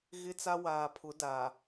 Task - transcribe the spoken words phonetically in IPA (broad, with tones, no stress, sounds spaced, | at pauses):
ɣ ɪ˦ t͡s a˦ w aː˨ pʰ ʊ˨˦ d a˨